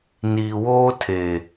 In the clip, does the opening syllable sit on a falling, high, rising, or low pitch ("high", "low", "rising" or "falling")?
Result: low